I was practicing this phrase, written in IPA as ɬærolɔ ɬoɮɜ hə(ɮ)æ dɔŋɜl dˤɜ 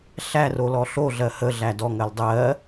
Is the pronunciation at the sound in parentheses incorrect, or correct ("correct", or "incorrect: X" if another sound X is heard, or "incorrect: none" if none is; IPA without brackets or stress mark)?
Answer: correct